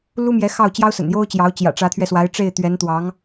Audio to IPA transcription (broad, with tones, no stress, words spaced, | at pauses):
lu˥mjɛ˧˥ xɑ˥˩ʊ̯ t͡ɕjɑ˥ʊ̯sə̰˨˩njo˥ʊ̯t͡ɕjɑ˧˥ʊ̯ t͡ɕjä̰˨˩ʈ͡ʂä˧˥t̪ʰɥɛ˧swa˧˥ɪ̯ ʈ͡ʂe˥˩ɪ̯t̪ɥɛ˧˥nt̪wɑ˧˥ŋ